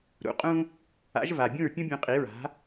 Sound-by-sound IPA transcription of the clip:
ɾ ṵ˩ qʼ ũ˧ | a̰˩˥ ʒ v a˩ bʲ ũ˥˩ ɹ pʲ ũ˥ bʲ ũ˧ qʼ i˩˥ ɹ a̤˩˥

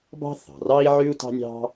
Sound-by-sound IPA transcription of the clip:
b ɑ̤˥ θ ɑ̤˩ r ɑ˥ i̯ ʕ ʉ˥ u̯ t ɑ̤˥ nʲ ɑ̤˥

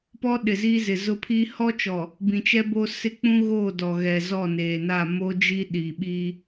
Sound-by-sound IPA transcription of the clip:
p ɔ˦ ɗ ɪ˨ z i˦ z ɪ˨ z ʊ˦ pʰ iː˦ h ɔ˦ t͡ʃ ɔ˨ | b ĩ˨ t͡ʃ ɛ˦ b o˦ s ɪ˦ k͡p ũ˦ ɣ oː˦˨ d ɔ˨ ɣ ɛ˨ z ɔ˦˨ n eː˨ n a˦˨ m o˦ d͡ʒ i˦ ɗ i˨ ɓ i˦

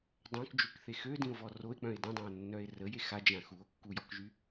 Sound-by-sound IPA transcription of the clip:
dˤ œ̃ k d͡ʒ y k θ e x ø d ĩ o̯ v ɔ r o e̯ k͡p œ̃ e̯ d ĩ dˤ ã o̯ nː œ e̯ r ə j e x a d͡ʒ ã x u o̯ kː u j ɔ k ʒ y

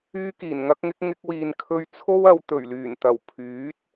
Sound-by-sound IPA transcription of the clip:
yː˥ k iː˨˩ n ŋ ɐ˥ k̚ ŋ ɪ˥ k̚ ŋ ɪ˧ k̚ w iː˨ n kʰ ɵ˧ ɥ t͡sʰ o˥ w ɐ˨˧ w t̪ ɵ˨˩ ɥ l yː˨˩ n t̪ ɐ˨˩ w pʰ yː˨˥ t̚

